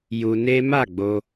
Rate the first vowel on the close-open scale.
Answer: close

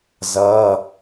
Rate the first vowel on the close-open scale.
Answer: mid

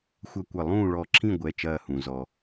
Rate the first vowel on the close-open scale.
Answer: open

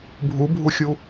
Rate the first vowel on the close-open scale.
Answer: close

